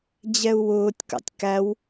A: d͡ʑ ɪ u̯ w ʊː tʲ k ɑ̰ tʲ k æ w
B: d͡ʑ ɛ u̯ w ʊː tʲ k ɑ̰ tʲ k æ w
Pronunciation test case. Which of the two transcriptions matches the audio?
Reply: B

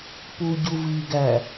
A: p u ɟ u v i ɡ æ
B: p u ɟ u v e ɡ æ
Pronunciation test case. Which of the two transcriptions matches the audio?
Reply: A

